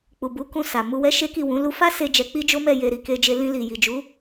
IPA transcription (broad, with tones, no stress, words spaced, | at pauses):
k͡pu˨bu˨˦ kũ˧sa˨mu˧ wɛ˦ʃe˦ki˦˨wũ˨˦ lu˧fa˦se˧ d͡ʒɛ˧k͡pi˦d͡ʒo˦mɛ˦˨ je˧ɾi˨ke˧d͡ʒe˧ lĩ˧li˨ji˨d͡ʒu˨˦